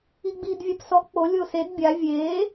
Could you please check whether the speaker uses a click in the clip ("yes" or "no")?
no